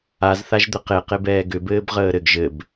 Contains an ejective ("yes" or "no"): no